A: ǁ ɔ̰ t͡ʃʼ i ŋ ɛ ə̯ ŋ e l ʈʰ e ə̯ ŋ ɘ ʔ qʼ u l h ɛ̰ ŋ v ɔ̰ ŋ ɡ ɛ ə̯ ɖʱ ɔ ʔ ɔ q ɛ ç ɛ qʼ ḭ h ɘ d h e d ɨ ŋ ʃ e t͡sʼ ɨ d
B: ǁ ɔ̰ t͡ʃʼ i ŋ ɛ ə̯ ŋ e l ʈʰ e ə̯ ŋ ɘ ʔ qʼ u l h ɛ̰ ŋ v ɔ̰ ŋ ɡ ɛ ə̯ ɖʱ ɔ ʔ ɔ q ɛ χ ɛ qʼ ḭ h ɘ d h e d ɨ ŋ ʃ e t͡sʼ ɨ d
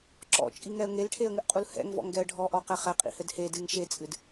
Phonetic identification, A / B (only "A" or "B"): B